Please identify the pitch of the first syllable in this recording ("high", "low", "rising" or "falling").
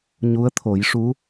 rising